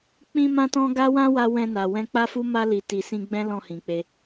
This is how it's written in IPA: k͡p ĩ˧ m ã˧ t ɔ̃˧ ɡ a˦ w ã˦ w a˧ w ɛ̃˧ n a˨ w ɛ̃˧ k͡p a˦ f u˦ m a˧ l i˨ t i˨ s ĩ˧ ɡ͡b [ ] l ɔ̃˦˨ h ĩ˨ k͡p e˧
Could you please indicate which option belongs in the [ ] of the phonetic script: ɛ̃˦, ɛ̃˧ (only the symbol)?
ɛ̃˦